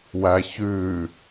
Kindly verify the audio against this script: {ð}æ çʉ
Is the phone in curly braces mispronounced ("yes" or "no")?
yes